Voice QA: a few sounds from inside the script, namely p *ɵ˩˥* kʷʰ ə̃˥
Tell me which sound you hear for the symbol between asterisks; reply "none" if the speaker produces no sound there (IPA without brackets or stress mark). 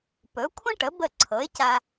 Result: ɵ˩˥